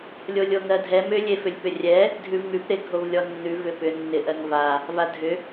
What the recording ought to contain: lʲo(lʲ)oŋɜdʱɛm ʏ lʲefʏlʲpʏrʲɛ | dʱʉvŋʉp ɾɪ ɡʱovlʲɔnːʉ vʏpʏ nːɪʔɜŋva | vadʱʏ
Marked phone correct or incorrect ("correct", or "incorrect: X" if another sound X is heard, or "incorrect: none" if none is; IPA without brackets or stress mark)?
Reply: correct